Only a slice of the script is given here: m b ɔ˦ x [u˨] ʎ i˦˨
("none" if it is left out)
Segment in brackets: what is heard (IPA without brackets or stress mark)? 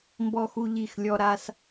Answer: u˦